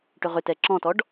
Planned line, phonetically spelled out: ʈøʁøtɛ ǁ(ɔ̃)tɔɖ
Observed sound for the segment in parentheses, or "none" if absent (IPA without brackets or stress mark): ɔ̃